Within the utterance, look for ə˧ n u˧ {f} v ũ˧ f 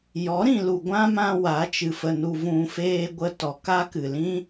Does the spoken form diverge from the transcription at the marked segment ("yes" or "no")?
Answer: yes